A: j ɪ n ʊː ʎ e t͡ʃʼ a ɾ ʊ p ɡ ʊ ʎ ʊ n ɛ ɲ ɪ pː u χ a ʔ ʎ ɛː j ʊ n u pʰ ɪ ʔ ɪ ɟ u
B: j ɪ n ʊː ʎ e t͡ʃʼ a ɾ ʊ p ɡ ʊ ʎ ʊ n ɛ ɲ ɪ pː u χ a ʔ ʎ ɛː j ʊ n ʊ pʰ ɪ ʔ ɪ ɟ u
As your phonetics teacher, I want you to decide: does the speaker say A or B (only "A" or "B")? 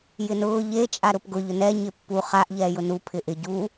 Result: A